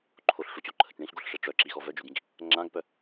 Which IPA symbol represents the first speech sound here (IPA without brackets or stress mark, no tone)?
ǃʰ